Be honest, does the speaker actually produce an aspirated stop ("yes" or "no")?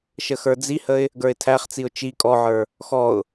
yes